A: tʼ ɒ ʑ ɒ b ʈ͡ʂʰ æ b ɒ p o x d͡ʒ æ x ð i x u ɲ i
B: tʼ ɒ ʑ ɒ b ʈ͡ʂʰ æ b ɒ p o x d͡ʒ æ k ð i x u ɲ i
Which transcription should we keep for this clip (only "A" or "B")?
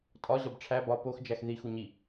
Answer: A